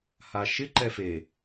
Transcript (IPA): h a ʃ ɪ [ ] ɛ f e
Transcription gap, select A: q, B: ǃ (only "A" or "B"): B